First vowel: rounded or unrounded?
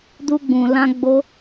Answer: rounded